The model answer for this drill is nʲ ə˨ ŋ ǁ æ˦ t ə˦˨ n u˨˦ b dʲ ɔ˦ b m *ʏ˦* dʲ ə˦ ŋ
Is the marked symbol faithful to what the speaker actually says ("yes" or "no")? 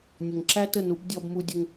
no